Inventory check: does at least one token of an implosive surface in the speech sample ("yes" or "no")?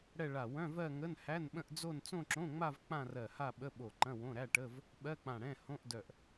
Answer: yes